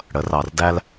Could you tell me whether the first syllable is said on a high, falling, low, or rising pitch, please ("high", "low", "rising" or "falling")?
rising